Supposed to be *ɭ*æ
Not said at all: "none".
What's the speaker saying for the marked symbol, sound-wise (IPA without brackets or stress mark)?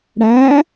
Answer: ɽ